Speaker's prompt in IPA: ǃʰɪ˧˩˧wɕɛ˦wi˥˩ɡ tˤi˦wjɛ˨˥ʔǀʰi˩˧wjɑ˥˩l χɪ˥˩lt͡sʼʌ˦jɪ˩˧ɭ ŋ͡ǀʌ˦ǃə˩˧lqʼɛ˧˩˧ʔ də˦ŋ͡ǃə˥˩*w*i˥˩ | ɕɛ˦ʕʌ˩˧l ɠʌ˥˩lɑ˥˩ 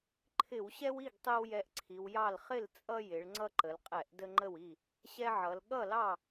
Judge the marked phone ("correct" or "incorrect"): correct